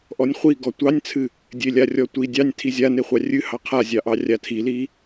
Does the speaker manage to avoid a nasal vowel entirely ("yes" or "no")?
yes